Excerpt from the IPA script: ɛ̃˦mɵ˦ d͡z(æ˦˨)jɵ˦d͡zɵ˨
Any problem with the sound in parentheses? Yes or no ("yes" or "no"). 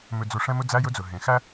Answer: yes